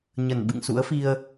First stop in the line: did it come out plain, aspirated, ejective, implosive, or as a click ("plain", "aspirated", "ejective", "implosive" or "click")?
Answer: implosive